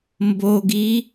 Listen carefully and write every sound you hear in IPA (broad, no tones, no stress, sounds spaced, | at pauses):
m b o ɡ i